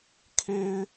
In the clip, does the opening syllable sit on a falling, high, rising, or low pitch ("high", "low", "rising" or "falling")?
high